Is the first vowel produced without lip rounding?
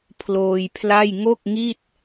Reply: no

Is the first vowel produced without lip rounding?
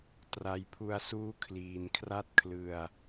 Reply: yes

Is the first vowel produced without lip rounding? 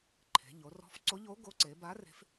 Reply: yes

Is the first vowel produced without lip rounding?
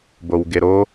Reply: no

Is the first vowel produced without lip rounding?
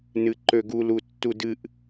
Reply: yes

